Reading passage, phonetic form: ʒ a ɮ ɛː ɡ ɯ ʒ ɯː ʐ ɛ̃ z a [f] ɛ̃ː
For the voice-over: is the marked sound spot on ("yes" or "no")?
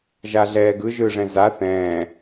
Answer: no